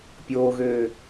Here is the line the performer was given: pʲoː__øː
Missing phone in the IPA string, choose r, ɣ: ɣ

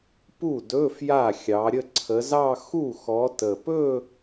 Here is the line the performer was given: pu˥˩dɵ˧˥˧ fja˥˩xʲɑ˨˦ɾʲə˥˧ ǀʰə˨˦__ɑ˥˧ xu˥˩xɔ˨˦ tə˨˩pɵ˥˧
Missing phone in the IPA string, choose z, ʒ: z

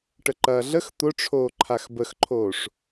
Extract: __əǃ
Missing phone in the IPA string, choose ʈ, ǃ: ʈ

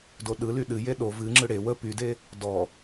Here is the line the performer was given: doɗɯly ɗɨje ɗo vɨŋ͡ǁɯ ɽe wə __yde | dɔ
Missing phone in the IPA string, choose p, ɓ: p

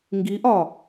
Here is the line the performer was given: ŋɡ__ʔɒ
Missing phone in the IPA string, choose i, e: i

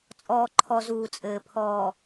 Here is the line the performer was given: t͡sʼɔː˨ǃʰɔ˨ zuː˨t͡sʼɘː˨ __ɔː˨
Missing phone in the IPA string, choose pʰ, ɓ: pʰ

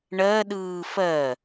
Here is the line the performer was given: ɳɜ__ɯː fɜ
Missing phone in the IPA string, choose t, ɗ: ɗ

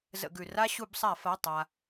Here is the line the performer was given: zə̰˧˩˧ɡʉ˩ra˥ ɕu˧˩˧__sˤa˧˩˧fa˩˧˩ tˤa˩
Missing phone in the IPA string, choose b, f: b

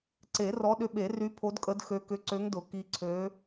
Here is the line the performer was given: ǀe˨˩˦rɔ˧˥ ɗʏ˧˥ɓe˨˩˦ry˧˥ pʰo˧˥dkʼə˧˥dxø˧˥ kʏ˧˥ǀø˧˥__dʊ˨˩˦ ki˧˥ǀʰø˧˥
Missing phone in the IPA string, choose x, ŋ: ŋ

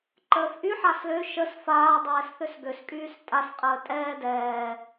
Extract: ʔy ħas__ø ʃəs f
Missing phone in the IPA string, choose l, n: l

